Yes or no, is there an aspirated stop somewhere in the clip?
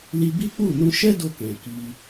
no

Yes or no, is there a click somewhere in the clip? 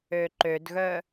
yes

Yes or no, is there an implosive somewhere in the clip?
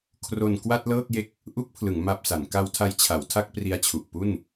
no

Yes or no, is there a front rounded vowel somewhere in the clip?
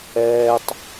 no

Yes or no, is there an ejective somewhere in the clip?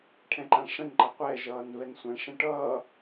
no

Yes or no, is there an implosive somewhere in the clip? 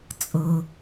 no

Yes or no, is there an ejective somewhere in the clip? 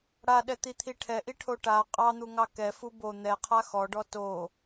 yes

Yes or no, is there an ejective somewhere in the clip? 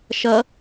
no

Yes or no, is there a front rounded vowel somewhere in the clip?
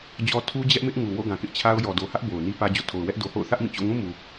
no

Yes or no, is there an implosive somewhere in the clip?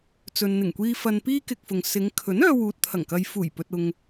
no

